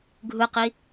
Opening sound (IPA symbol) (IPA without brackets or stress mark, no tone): ɡʱ